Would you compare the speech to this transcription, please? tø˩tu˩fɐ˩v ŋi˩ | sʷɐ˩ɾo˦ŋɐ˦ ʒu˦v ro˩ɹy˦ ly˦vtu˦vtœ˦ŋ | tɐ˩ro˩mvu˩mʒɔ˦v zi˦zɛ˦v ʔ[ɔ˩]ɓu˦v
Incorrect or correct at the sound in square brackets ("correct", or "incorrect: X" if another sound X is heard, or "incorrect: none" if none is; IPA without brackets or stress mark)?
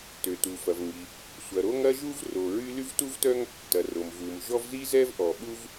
correct